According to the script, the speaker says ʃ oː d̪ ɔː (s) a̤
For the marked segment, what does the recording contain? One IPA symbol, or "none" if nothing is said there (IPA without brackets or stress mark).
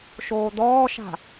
ʃ